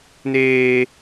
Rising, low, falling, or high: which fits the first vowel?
high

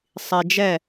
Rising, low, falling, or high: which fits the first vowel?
low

